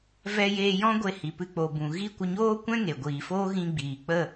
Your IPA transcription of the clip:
v ɛ˧ j eː˧ j ɔ̃˦ ɡʷ e˧ h i˨ p ɨ˧ k͡p o˨ b ũ˨ ɣ i˦ kʷ ə˧ ɲ oː˦ kʷ ɛ̃˦ ŋ e˨ ɡʷ iː˨ f oː˦ ɣ ĩ˧ ɡ͡b iː˨ k͡p ə˦˨

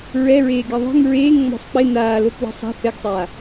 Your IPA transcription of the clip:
ɹ ɛ ɹ eː ɡ e ðˤ i̤ ŋ ɹ eː ŋ ŋ͡m ɔ̤ sˤ k͡p ɪ n aː l o k w i̤ sˤ a̤ θ ɛ ɡ sˤ aː

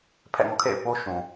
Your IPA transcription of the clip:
pʰ ɛ̰˦˨ ŋ ɔ̰˦˨ kʰ ḛ˦˨ ɪ̯ p o˦ ʃ ũ˨

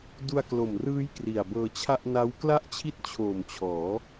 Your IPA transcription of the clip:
d u˧ a̯ k l o˨˩ m r ɯː˦˥ j k r i˨˩ a̯ b ɤː˧ t͡ɕʰ a˥˩ ʔ n a˦˥ w k l a˥˩ ʔ t͡ɕʰ i˥˩ t̚ t͡ɕʰ oː˨˩ m t͡ɕʰ ɔː˩˦

